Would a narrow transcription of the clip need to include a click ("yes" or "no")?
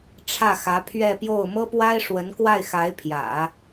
no